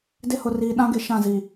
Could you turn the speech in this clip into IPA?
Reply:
d ɪ˦ h ʊ˨ r iː˨ ɗ ã˦ ɡ e˨ ʃ ã˦˨ z i˨

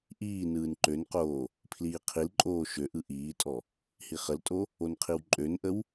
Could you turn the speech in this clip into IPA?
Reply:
ʔ iː n ɯː n ǃ ø n q oː | pʰ l iː qʰ i l ǃʼ oː ʃ ø ʔ ɯ ʔ iː tʼ ɔ | h i χ ə l tʼ o | o n qʰ i w ǃʼ ø n ʔ ə w

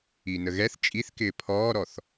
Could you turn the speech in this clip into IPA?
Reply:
i n ə ɣ ɛ θ t͡ʃʼ i θ k ɪː pʰ ɔː ɾ ɔ θ

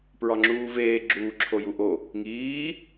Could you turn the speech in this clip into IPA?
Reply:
p ɹ ɒ ŋ͡ǁ uː v eː ɡ͡ǁ uː ǁʰ o j u ʔ o | ŋ iː

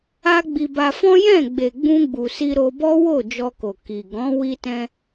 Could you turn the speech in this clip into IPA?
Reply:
a˦ ɡ͡b i˧ b a˧ f ɔ̃˦ j ɛ̃˦˨ ɡ͡b e˨ ɡ͡b ũ˧ ɡ͡b u˨ s i˧ ɾ o˧ b ɔ˦ w o˦˨ d͡ʒ ɔ˧ k o˨ k i˨ ɡ ɔ̃˨˦ w i˧ t ɛ̃˧

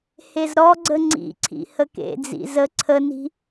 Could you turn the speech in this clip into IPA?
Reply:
h e z ɾ ɔ ɡ͡ǀ ə ŋ͡ǀ ḭ ǀʰ ḭ h ə k ḛ d͡z ḭ z ə ǀʰ ə n i̤

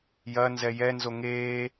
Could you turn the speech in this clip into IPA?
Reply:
j ɐ n z ɛ j ɛ n z o ŋ eː

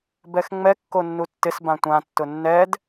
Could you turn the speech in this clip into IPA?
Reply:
b ɛ x ŋ͡m ɛ kː o nː u tː ɪ s b ã tʷ ã tː ʊ nː ɛ d

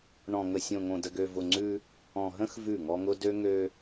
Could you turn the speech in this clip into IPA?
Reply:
ɳ ɔ̃˨ ŋ ə˨ sʲ õ˨ ŋ õ˨ d ə˨ ɡ ø˨ v ʊ˨ ŋ͡ǀ ʉ˦ | ɔ̃˨ ɦ ə̃˦ x v ʉ˦˨ ŋ ɔ˦ ŋ ʊ˦ d ø˦ ŋ ø˦

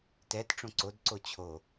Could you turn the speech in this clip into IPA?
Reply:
t ɛ t ʈ͡ʂ õ ǀ o d ǀ o t͡ɕʰ o

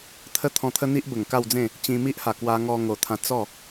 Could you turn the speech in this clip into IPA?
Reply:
t̪ʰ ə˦ t̪ʰ ɔ̃˧ t̪ʰ ə˦ n̪ i˦ ʔ b ə˨˩ ŋ k a˥˧ w d͡z ẽ˥˧ | t͡ɕ ĩ˧ m i˦ ʔ h a˨˩ k w a˧ ŋ ɔ˧ ŋ o˨˩ t̪ʰ ã˧ t͡s ɔ˥˧

